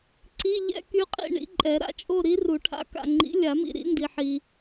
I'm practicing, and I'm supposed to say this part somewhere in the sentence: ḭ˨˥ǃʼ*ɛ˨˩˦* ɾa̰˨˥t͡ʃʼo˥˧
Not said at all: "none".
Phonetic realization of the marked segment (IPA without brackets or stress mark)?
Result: ɛ˨˩˦